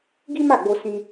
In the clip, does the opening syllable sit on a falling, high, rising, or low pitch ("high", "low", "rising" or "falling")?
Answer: high